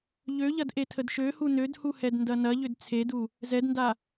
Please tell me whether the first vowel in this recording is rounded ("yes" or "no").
yes